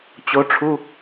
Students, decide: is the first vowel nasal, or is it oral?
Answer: oral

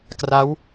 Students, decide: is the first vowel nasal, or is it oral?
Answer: oral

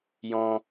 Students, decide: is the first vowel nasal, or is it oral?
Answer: nasal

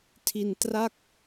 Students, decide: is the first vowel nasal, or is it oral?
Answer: oral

